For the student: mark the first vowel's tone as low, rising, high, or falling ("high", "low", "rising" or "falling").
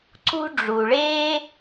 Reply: high